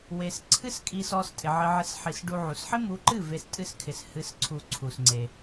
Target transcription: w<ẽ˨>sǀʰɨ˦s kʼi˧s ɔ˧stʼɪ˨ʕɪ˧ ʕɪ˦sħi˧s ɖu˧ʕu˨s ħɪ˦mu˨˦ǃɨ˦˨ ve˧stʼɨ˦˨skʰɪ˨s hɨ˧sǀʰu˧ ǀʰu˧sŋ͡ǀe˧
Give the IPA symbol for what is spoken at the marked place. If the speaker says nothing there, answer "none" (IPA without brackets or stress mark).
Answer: e˨